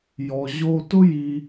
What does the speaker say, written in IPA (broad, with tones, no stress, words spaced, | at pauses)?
jɔ˩ʑo˧tʊ˥ ji˧